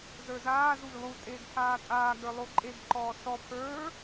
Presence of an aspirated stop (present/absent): present